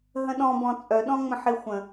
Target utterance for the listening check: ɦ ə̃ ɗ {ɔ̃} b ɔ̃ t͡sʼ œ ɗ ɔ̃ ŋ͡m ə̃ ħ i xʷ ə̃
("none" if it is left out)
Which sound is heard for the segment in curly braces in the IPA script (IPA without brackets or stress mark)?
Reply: ɔ̃